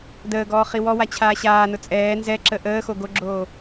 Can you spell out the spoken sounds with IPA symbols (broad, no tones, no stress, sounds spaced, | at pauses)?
d əː ɡ ɔː χ i w ɔ w a t͡ɕʰ aː ɕ aː n ʊ t͡sʼ ɛː n z ɛ ǁ ə ʔ əː x o ɡ o ɡ͡ǁ oː